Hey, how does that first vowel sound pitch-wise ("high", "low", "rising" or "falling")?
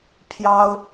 high